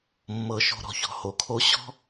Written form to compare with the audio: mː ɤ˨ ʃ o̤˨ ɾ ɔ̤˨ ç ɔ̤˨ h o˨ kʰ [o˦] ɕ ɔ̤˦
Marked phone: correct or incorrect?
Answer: correct